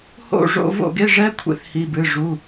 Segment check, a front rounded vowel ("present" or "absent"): absent